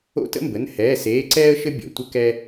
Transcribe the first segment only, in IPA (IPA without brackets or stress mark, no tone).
o̰